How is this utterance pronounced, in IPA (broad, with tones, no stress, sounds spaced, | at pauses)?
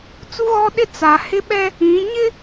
t͡s u˦ ɣ ɔ˦ ɗ ɪ˦ t͡s a˨ h ɪ˦ ɓ ɛ˦ | ĩ˨˦ ɲ ɪ˦